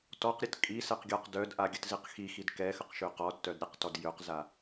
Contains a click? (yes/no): no